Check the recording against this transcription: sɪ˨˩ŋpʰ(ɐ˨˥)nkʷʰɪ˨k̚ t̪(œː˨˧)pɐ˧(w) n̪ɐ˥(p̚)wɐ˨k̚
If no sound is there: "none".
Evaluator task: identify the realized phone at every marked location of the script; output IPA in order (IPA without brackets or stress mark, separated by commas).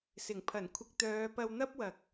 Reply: ɐ˨˩, œː˨˧, w, p̚